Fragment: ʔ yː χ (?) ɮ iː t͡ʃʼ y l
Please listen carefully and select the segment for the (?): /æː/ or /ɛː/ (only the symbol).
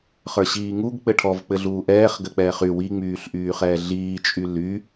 ɛː